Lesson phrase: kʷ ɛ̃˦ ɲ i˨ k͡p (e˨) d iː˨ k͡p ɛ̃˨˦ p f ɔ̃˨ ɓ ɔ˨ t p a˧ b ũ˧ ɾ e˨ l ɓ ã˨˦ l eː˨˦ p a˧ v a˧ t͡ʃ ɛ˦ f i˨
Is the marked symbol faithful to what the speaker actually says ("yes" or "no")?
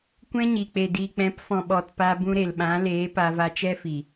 yes